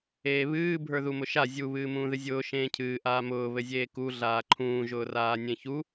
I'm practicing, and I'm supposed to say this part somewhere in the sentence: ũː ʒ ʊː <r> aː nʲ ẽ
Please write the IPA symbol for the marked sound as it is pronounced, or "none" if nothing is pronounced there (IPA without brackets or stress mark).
r